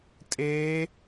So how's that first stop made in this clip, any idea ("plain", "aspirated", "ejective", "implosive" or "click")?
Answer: ejective